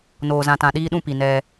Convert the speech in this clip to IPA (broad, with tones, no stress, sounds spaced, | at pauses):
n oː˨ z ã˨ t ã˨ ɗ iː˦ ɗ ũ˦˨ p i˨ n ɛ˦